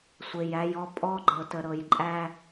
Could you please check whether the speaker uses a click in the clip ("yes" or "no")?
yes